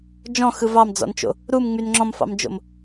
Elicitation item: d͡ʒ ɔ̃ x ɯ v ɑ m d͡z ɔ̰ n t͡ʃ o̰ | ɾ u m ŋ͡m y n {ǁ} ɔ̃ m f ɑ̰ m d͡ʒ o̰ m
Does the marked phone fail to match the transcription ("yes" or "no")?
yes